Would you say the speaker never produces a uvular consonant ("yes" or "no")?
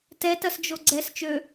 yes